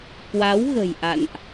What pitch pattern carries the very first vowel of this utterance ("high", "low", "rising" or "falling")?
rising